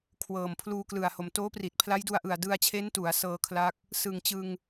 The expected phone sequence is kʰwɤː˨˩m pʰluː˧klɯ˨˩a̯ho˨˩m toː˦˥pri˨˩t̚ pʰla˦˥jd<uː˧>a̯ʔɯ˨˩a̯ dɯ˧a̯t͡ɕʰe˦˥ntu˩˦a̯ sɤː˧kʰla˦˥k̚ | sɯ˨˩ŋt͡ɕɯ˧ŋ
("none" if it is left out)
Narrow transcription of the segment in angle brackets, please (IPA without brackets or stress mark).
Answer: u˧